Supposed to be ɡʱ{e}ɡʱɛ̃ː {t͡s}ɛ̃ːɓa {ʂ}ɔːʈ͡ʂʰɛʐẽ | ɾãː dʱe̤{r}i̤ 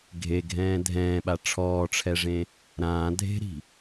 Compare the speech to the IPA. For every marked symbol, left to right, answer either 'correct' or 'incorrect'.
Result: correct, incorrect, incorrect, incorrect

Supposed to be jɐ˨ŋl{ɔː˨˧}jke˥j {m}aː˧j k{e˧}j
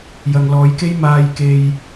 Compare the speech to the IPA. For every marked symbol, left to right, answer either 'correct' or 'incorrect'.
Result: correct, correct, correct

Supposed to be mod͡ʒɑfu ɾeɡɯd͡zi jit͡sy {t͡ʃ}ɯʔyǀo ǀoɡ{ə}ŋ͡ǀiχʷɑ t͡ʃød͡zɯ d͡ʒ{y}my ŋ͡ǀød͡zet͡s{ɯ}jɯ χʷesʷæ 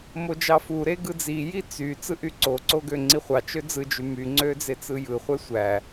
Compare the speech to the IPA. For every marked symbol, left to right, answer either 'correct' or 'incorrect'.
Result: incorrect, incorrect, correct, correct

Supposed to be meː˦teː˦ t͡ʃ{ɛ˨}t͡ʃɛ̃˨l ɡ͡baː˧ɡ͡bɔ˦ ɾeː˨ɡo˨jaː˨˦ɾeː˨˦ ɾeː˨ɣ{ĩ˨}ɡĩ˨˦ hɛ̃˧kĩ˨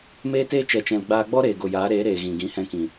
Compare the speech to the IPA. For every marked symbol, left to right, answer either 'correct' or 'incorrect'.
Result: correct, correct

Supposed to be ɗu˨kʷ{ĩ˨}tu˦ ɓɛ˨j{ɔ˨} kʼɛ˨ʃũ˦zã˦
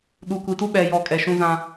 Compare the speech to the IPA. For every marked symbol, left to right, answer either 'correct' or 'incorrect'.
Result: incorrect, correct

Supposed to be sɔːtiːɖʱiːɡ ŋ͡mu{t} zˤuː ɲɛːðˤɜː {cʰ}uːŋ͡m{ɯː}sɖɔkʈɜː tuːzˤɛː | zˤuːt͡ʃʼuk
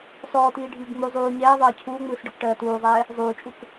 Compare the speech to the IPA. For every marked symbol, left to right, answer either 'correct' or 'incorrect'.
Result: incorrect, correct, correct

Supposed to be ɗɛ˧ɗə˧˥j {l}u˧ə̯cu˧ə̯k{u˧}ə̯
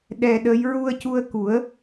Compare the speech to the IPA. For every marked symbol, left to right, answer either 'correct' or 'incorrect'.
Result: incorrect, incorrect

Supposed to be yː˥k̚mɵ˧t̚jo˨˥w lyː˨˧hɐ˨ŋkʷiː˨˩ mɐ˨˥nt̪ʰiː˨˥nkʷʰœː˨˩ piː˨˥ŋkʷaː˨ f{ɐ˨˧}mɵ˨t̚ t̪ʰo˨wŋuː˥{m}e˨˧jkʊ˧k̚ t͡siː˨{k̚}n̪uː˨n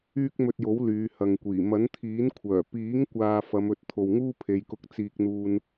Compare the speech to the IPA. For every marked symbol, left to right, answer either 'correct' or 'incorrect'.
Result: correct, incorrect, correct

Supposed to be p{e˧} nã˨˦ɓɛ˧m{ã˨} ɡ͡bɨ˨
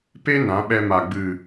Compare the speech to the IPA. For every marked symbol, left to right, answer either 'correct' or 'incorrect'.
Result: incorrect, incorrect

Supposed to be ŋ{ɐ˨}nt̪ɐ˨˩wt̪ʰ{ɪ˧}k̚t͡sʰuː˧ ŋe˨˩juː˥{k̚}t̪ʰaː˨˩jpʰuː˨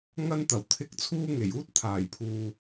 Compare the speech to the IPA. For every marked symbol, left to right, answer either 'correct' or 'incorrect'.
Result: incorrect, incorrect, incorrect

